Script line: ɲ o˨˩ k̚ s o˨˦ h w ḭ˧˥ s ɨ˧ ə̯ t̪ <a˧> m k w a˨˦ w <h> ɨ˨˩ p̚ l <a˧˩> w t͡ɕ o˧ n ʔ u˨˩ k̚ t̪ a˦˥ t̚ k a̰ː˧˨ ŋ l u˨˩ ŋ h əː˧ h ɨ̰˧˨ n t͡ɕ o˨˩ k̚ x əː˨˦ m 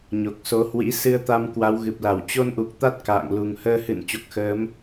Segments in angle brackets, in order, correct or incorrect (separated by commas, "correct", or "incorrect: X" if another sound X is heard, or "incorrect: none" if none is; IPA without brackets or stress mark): correct, incorrect: ɣ, correct